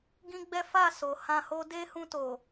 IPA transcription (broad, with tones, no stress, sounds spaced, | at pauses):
ɡ ĩ˦ ɡ͡b ɛ˦ f a˦˨ s o˨ h ã˧ h o˦ d e˦ h ũ˧ t o˨